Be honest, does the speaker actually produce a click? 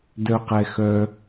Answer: no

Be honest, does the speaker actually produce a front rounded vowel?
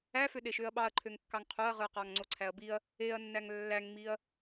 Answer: yes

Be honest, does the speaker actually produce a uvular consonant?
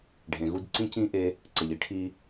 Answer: no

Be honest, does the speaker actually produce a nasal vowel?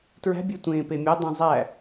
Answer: yes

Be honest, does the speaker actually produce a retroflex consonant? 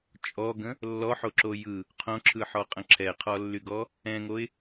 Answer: no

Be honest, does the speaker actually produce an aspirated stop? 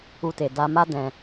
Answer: no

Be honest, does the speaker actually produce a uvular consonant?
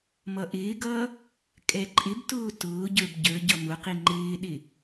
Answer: yes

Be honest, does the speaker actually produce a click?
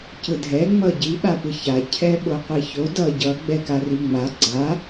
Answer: yes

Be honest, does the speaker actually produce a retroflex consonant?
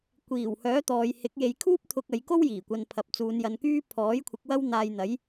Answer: no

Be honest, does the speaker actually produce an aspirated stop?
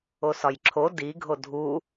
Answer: yes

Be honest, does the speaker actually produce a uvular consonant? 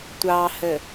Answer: no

